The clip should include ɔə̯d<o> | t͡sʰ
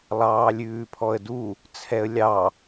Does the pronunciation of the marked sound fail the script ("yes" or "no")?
yes